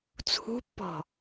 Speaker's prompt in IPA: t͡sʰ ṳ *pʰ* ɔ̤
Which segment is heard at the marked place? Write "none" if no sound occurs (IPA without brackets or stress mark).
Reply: pː